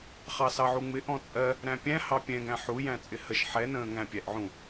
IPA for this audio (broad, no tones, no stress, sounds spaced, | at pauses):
χ ɑ s ɑ ʕ u ŋ͡m ɪ ʔ ɔ̃ t͡sʼ ɜ | ɾ æ̃ pʲ æ̃ h ɑ pʲ ɛ̃ ɡ æ̃ ħ u j æ̃ t͡sʼ ɪ h ə ʃ ħ ɛ n ə̃ː ŋ æ̃ pʲ æ ʔ ʕ ũ